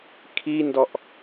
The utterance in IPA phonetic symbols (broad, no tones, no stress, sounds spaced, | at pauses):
kʰ i n d ɔ ʔ